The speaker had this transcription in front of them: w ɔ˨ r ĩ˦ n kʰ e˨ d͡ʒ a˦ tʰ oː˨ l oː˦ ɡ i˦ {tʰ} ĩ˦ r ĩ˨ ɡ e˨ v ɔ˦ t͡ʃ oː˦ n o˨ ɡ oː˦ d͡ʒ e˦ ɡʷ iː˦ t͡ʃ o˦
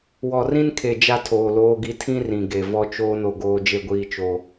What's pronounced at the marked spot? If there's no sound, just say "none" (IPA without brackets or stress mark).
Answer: tʰ